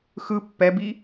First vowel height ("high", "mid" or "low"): high